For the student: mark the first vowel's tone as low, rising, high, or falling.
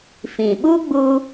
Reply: low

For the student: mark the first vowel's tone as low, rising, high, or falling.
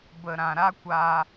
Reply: low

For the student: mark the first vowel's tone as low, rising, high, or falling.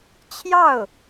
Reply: falling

